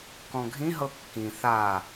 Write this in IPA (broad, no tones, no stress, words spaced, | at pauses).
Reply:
kɔ̃ɡʱĩ ɦɤkːĩ θa